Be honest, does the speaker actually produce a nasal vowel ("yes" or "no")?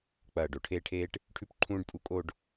yes